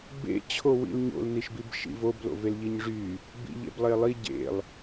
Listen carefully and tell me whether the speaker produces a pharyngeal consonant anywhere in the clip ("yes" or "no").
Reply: no